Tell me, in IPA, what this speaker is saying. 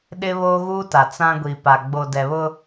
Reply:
ɗ ɪ˦ β oː˦ ɣ uː˦ t a˨ t͡s ã˦ ɡʷ i˨ p a˨ ɡ͡b o˨ d ɛ˨ β ʊ˦

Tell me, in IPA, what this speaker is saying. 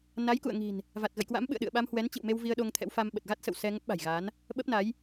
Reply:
n a˨˦ j k ṵ˧˨ ə̯ ŋ i̤˨˩ n | v a˨˩ t̚ ɣ ə̰˧˨ j k w a̰˧˥ m ɓ ɨ̰˧˨ ə̯ ɗ ɨ̰˧˨ ə̯ ɓ a˧ m h w ɛ˨˦ n t͡ɕ ḭ˧˨ w m e˧ w v i˧ ə̯ ɗ o˧ ŋ t̪ʰ ɛ̰˧˥ w f a˧ m ɓ ə˨˩ t̚ ɣ a˦˥ t̚ s ə̰˧˨ w s ɛ˧ ŋ ə˦˥ p̚ ɓ a̤˨˩ j ɣ aː˨˦ n | ɓ ə˦˥ p̚ n a˨˦ j

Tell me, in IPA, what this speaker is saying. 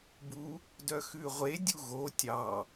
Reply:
b u | d œ x ʉ ʁʷ e dʲ u ɣ o tʲ ɑ

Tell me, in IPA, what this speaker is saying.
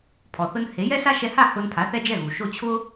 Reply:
pʰ ɔ˩ θ ʊ˧ n h e˩˥ j ɛ˥ s a˥ ʃ ɛ˧ h a˥˩ h ʊ˧ n pʰ a˩˥ θ ɛ˧ d͡ʒ ɛ˥˩ ɣ u˩ ʃ o˥˩ t͡ɕʰ ʊ˥

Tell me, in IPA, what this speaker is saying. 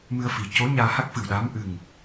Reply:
m ɨ˧ ə̯ f i˨˩ c o˧˥ ɲ aː˧ h a˦˥ k̚ f ɨ˨˩ w ɗ aː˧˥ m ʔ ɨ˨˩ ŋ

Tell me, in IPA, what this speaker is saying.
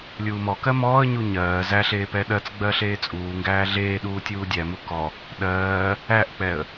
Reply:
lʲ uː m ɔ k ɜ m ɔː ə̯ ɲ u ɲ ɜː z æ ɬ eː p ɛ ɗ ɜ t͡s ɡ͡b ɜ ɬ eː t͡sʼ uː ŋ ɡ æː ɮ eː ɗ uː tʲ uː dʲ æ m u k ɔ | ɗ ɜː | æ ʔ k͡p ɛ ə̯

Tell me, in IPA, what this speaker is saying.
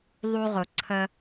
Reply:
ðˤ u˧ ʁ ʊ˨ ǀʰ ə˧

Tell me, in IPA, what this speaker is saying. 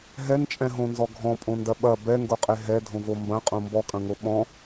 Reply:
ɦ ɛ n t͡ʃʼ ɛ̃ ɦ õ n z ɔ ɡʱ ɔ̃ pʼ õ n d ɐ ɓ ɐ b ɛ ŋ ɡ o qʼ e ɦ ɛ dʱ õ v o m b ɐ̃ qʼ õ m b ɔ kʼ ɐ̃ ŋ o ɓ ɔ̃

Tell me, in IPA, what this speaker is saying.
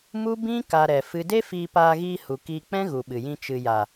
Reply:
m u˦ b ĩ˦ k a˦ ɾ ɛ˧ f ɨ˦ d e˦ f iː˧ p aː˧ ɣ iː˧ h u˨ k iː˧ k͡p ɛ̃˦ ɣ u˨ ɓ ɨ˨ j ĩ˧ t͡ʃ ɨ˨ j a˨

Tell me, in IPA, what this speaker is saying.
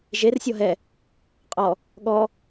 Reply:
ʒ e r sʲ ɔ ɦ ɛ | qʼ ɔ | ɠ ɔ

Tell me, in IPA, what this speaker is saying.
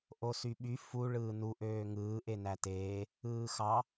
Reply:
ʔ o s y ɓ y f u ɭ ɯː n u ʔ øː ŋ ɯː ʔ e n æ t eː | ɯː x ɑ

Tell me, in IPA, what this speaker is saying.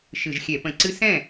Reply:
ʃ ɨ˧˩˧ ʒ xʲ ɛ˧˩˧ p ə̃˧˩˧ ǀ ɨ˦˥ s ɛ̃˥˩

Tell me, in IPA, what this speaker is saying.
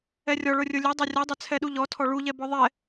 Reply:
ɛ rʲ ɔ ɭ ʊ rʲ ʊ lʲ ɵ dˤ ɛ rʲ ɔ dˤ ɵ t͡sʰ ɛ ɗ u ʎ ɔ tʰ ɔ ɭ u ʎ ɛ b ɔ ðˤ ɛ

